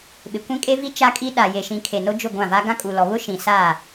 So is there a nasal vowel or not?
yes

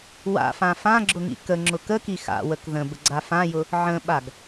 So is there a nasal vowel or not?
yes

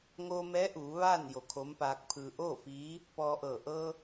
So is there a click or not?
no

